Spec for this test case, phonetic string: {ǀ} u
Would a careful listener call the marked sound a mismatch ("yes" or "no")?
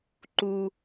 yes